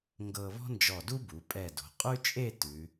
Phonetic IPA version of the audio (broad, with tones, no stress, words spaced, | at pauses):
ŋɡɤ˧βɔ̤˥nd͡ʒɔ˧˩du˥ bu˩˧pʼɛ˧˩ do̤˩˧qʼʉ˥t͡ʃʼe˥˧ tʉ˩˧